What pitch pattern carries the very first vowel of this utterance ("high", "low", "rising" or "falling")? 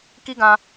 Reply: high